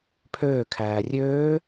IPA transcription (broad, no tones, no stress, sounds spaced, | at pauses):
pʰ øː kʰ æː rʲ øː